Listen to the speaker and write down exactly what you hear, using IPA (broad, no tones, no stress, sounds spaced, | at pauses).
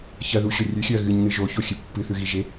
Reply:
ç ɐ ð u ɕ ɵ rʲ ʉ xʲ ɵ ɐ̯ ɣ ɨ ɲ n ɨ ʒ o ç o xʲ ɨ pː ɨ θ ʉ ɣ i ʒ e